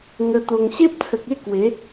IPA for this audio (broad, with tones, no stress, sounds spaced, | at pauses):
ŋ ə˧ t̪ o˧ ŋ ɕ e˦ p̚ t͡sʰ ə˨ k̚ e˥˧ k w e˨˦